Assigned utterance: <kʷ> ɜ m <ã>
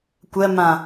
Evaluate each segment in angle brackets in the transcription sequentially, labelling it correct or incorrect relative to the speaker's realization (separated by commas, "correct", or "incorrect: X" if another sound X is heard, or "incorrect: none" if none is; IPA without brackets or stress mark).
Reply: correct, correct